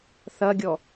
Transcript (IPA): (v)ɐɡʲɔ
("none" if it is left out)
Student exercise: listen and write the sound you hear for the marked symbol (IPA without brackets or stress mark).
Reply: θ